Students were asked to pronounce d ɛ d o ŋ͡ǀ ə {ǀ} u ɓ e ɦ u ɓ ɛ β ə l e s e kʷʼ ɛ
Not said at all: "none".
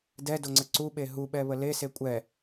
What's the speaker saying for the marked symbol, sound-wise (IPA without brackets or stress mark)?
ǀ